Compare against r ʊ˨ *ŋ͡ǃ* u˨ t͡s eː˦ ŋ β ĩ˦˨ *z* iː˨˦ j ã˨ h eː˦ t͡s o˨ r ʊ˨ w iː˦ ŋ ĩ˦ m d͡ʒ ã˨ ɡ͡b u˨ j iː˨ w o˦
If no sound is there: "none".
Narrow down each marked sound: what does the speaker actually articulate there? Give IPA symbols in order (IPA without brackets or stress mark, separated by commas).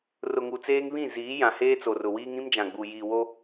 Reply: ŋ, z